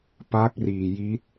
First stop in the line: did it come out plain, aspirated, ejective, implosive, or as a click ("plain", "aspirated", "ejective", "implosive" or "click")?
plain